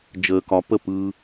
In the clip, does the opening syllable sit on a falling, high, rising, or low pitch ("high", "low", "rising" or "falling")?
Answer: low